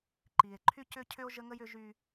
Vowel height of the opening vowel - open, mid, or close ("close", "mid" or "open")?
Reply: close